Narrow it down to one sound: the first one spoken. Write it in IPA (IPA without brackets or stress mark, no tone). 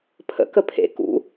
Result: pʰ